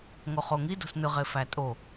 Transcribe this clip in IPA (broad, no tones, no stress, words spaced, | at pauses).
ŋoχoŋi do̤snɯʁe fætʼo